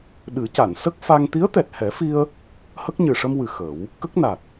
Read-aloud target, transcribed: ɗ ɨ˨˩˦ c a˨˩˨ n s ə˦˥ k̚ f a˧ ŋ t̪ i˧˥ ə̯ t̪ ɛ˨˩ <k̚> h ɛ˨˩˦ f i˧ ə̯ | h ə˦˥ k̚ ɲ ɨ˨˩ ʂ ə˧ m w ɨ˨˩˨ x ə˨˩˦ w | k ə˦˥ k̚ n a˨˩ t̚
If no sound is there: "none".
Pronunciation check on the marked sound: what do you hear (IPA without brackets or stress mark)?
t̚